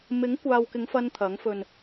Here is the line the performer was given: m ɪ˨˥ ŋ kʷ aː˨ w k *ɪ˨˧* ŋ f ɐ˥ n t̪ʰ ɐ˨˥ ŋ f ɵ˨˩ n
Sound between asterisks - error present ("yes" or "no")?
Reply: no